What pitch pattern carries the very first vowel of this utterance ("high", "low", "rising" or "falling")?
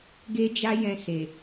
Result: high